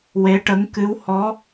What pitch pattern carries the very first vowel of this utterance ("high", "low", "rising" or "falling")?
rising